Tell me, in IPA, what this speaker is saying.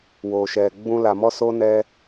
w o˨ ʃ ɛ˨ ɡ͡b ũ˧ l a˨ m ɔ˧ s o˧ n ɛ˧

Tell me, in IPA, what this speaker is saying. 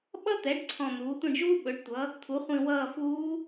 ɓ ʌ˥ t̪ ɛ˩˥ ɖ ǀʰ ɔ̃˦˨ n̪ uː˩˥ tʷ ĩ˦˨ ɖ ʒ uː˥ ɓ ɵ˩˥ ɖ tʷ ʌ˩˥ | t̪ʰ u˩˥ χʷ ĩ˦˨ w ʌː˦˨ f uː˧˥

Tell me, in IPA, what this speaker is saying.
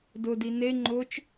d ʊ d i n e ŋ͡ǃ ʊ t͡ʃ

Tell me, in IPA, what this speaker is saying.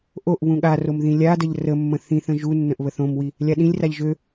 ʔ o ʔ β ũ ɠ a r o m ð ĩ lʲ a d ə ʎ r ə mː ə̃ θ ĩ θ ə̃ ʒ u nː ə̃ ʔ β ə θ õ m w i | lʲ a ɗ ĩ lʲ r a ʎ ʒ ø

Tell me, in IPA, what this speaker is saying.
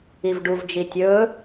i v ɖ u v d͡ʒ i tʲ ɵ

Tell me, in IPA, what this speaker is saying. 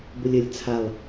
b ʊ lʲ ə lʲ t͡sʰ a lˠ

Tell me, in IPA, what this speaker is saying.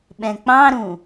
ɓ ɛ̃ k͡p ɑ̃ ɾ ũ

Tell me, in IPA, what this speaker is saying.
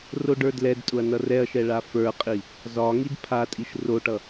r o ɖ ə˞ d l ɛ d tʼ ʊ ɐ̯ n ʌ r ɛ ɐ̯ ʃ ɛ ɭ a f ə˞ qʼ i | z ɒ ŋ i d pʰ a tʼ i ʃ r o ʈ ʌ

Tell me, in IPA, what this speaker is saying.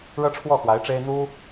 ɻ ɤ˥ ʈ͡ʂʰ w ɔ˥˩ x w a˧˥ ɪ̯ ʈ͡ʂ e˥ ɪ̯ n̪ u˥

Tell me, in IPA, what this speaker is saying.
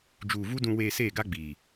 d͡ʒ uː˨ v u˦ d ũ˨ w eː˨ s eː˦˨ ɡ a˦ ɡ͡b iː˨

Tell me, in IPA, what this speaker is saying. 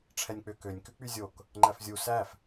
ʈ͡ʂʰ ɛ nʲ k͡p ø k ø nʲ k ʉ k͡p y zʲ o k | ŋ͡ǃ æ f zʲ u s æ f

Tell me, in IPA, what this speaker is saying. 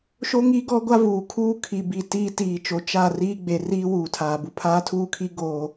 ʃ o˦ ŋ i˦ ɡ ɔ˦ ɡʷ a˦ v uː˨ kʰ uː˦ kʰ i˨ b i˨ t iː˦ t iː˨ t͡ʃ o˨ t͡ʃ a˦˨ r iː˦ ɡ͡b e˨ r iː˦ w uː˨ tʰ aː˨ b u˨ pʰ aː˦ tʰ uː˦˨ kʰ i˦ ɡ oː˨

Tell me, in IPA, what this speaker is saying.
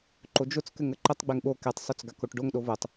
ǃ o d͡ʒ o t͡s k ɘ ŋ ə ǃ ə tˤ ɡ͡b e ŋ ɓ o k e tˤ sˤ o t͡s ɡ a k o ʈ ɖ o ŋ ɗ o v o tˤ

